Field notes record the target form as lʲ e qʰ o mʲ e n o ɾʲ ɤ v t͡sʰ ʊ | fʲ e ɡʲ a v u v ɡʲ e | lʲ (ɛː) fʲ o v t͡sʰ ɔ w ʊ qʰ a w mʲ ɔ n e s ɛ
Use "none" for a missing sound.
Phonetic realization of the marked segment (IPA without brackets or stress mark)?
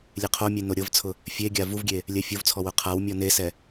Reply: ɛ